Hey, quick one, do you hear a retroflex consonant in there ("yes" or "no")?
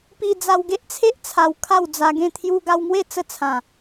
no